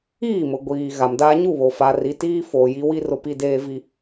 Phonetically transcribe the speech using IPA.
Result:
iː˦˨ m ʊ˨ ɡʷ iː˨ ɣ a˨ m d aː˦ ɲ u˦˨ β o˨ f a˨ r i˨ t iː˦ f oː˨ j i˦ w i˦ r ʊ˨ p i˨ d eː˨ v i˨

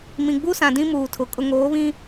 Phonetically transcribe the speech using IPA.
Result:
m ĩ˨ ɡ͡b u˦ s ã˨ d ĩ˦ m uː˨ tʰ ʊ˨ kʼ ʊ˨ ŋ oː˨˦ β ĩ˦

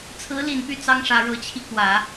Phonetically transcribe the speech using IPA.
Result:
t͡sʰ ɹ̩˧˥ l i˨˩ n p y˥˩ t͡s ɑ˥ ŋ ʂ ä˧˥ ɻ ɤ˧˥ t͡ɕʰ i˧ k w ä˨˩˦

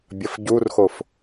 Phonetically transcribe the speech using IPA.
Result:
bʲ ɐ f ɟ u r x o f

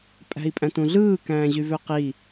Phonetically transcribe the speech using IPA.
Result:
pʼ æ̤ i̯ pʼ æ̃ t ũ ɮ ɯː k æ̃ː ʑ y v ø q i

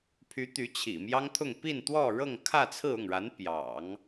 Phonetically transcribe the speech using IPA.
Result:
pʰ y˧˥ t̪ y˧˥ t͡ɕʰ ḭ˨˩ m j ɑ˥ ŋ t̪ʰ ʊ˥˧ ŋ p i˥˧ n t̪ w ɔ˥˧ ɻ ɤ˥˧ ŋ kʰ ä˥˧ t͡sʰ ɹ̩˥˧ ʊ˥˩ ŋ ɻ a˧˥ n p j ɑ̰˨˩˦ ŋ

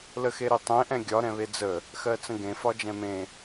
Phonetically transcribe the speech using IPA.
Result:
l ə x e ɾ i tˤ ẽ ʔ ɛ̃ ɡʲ ɒ ɾ ɛ̃ β e d͡z ə | x ɜ t͡s ə̃ ɡ ẽ f ɒ d͡ʒ ɛ̃ m ẽ

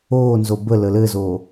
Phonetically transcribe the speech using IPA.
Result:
oː n z o b ə l ə l ɘ z oː

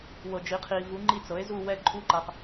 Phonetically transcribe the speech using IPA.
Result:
w ɤ˨ d͡ʒ i˩˥ qʰ i˨ v u˩˥ ŋ͡ǃ i˦˨ t͡s ɤ˩˥ e̯ z u˦˨ w ɛ˦˨ ǃʼ u˦˨ ǃ a˨ q

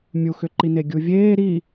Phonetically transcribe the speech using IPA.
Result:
mʲ u x ʏ ǃ i n e ɡʲ u vʲ eː ɾ i

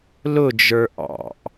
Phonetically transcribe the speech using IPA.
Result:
l ʊ d͡ʒ ə˞ ʔ ɑ̰ ʔ

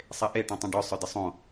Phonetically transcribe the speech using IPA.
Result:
sˤ e ʔ e ʈ ɔ̃ tˤ ẽ ɖ œ sˤ œ d ɪ sˤ õ

